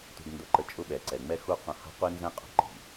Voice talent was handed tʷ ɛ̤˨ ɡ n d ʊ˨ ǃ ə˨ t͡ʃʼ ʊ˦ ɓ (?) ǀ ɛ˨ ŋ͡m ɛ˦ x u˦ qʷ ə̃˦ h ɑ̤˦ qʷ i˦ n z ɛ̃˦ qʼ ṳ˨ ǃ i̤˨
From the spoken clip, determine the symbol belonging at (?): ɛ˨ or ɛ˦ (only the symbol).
ɛ˨